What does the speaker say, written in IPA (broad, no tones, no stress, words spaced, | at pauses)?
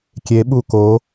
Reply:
kʲeɓu ko